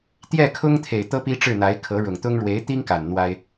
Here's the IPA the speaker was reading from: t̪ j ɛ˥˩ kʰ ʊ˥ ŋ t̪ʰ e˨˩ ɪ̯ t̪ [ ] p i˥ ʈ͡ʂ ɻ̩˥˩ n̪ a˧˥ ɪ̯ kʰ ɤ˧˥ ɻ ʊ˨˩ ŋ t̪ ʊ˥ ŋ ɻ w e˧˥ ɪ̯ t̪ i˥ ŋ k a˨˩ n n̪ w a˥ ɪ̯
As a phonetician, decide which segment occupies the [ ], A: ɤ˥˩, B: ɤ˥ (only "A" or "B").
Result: B